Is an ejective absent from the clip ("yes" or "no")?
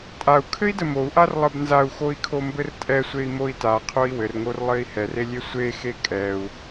no